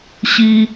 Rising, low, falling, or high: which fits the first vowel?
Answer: high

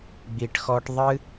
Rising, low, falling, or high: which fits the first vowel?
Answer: low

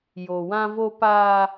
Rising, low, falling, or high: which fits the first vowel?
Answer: low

